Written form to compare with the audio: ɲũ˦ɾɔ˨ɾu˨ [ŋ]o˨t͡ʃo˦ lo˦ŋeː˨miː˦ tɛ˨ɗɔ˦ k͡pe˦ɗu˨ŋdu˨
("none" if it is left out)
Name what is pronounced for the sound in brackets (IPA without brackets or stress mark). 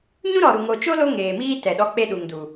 ŋ